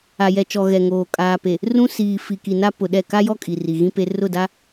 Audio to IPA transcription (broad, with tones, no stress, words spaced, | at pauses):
a˨jɛ˨t͡ʃɔ˨ ɣɛ˨ŋoː˨ kʼaː˨pe˨ | rũ˦ siː˨ fi˨ki˨na˦ pʊ˨ɗɛ˦˨ ka˦jɔ˦ kʼi˨ri˨ ɣĩ˦pe˦ rʊ˦˨da˦